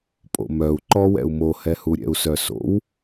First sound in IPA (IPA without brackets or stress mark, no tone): pʼ